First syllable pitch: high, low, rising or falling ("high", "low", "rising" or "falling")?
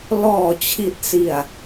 low